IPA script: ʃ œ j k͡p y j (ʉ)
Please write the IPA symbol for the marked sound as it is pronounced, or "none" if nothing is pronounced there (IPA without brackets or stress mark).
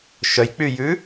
ʉ